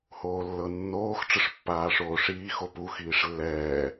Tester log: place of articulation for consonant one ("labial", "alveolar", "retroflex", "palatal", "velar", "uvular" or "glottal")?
glottal